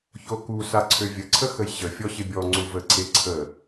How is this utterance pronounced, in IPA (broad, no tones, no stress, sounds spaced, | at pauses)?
ç o k u s a ǀʰ ø vʲ ə ǀʰ ə x ə j ɕ ə fʲ ɔ ɕ ɪ bʲ ɔ ŋ͡ǀ u v ə ǀʰ e ǀʰ ə